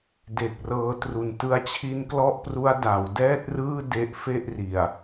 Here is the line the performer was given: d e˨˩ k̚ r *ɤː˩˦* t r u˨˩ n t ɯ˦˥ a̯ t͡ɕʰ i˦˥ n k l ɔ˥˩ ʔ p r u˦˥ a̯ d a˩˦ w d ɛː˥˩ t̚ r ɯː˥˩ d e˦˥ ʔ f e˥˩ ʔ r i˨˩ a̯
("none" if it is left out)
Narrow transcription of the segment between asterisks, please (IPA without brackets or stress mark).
ɤː˧